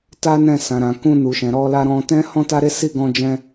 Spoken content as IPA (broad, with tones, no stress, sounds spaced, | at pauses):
t a˦ n ɛ̃˦˨ s ã˨ ɾ ã˨ k ũ˧ n u˨ ʃ ɛ̃˨ ɾ ɔ˧ l a˧ ɾ ɔ̃˧ t ɛ̃˦ h ɔ̃˦ t a˦ ɾ e˦ s i˦˨ ɡ ɔ̃˧ d͡ʒ ɛ̃˧